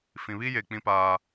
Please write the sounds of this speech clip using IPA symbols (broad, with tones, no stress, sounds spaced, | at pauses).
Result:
f ĩ˨ β i˦ j e˨ k͡p ĩ˦ p aː˦